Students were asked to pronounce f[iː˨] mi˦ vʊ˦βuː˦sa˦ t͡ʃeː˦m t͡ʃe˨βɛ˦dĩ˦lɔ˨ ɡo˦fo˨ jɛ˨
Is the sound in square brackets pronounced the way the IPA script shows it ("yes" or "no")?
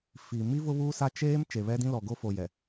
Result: yes